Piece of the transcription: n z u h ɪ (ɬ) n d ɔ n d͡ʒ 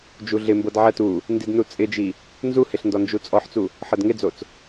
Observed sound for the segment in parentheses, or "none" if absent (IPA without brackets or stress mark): ɬ